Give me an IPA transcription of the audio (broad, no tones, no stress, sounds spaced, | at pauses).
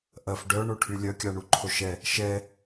ʔ ɐ f ɖ œ ɳ o ʈʰ y lʲ œ kʲ a ɳ u ǃʰ o ʃ ɛ | ʃ ɛ